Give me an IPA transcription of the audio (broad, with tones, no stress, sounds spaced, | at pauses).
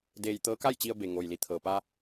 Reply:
d eː˧ j t̪ ɤː˧˥ k a˥˨ j t͡ɕ i˧ ə̯ b e˩ ŋ oː˩ j l i˩˧ t̪ʰ ɤː˩ p aː˧